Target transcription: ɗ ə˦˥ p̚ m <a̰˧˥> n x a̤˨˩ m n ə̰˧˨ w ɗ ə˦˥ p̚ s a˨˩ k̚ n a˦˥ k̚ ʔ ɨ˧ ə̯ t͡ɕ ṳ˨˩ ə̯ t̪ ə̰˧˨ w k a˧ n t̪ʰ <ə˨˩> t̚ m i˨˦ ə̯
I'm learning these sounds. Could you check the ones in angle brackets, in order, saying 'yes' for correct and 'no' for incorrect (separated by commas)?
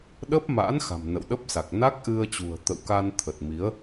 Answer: yes, yes